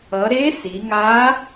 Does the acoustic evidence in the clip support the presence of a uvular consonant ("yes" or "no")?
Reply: no